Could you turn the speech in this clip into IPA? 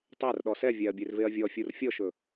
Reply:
tˤ ɛ r ɗ ɔ s ɛ vʲ æ ɐ̯ bʲ e r v e ɐ̯ vʲ ɔ fʲ u r fʲ ɔ ʃ ɵ

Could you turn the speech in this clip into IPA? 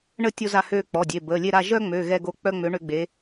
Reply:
ɳ ə˦˨ tʲ o˦ z a˦˨ h øː˦˨ k͡p ɔ˩˧˩ dʲ e˩˧˩ b əː˩˧˩ lʲ e˦˨ ɾ a˦˨ ʒ œ˦ ŋ͡m ø˩˧˩ ɣ ɛ˦˨ ɡ o˦˨ k͡p œ˦ ŋ͡m ø˨˥ ɳ ø˦ ɡ͡b e˨˥

